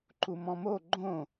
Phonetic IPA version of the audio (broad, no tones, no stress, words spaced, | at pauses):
ǃumɔ̃mo ɡ͡ǃõ